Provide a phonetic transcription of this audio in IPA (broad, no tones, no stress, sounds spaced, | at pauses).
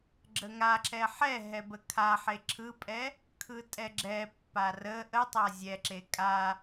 ɡ͡ǁ ə ŋ a ǁ ɛ ħ ɛ ɦ ɛ b ə kʰ a ħ e ǁʰ ɯ pʼ ɛ | kʰ ɯ tʼ ɛ ɡ͡ǁ ɛ pː a r ə ʔ ə tˤ a zʲ ɛ ǁ e kʼ a